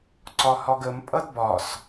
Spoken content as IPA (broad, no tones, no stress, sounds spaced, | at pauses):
ǀ ɒ h ɒ ɡ ə m pʼ ʌ d b ɒ s